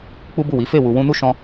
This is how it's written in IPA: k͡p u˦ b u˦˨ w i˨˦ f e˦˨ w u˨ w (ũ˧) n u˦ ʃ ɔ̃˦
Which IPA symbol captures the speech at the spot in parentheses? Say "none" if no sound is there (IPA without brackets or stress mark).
ũ˧